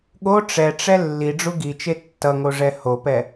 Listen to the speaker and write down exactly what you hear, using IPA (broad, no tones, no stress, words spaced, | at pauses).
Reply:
ɠo ʈ͡ʂɛʈ͡ʂɛ lːiɖ͡ʐu ɡit͡ʃe tːʌŋoʐɛ hopɛ